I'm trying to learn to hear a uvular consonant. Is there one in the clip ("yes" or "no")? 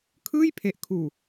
no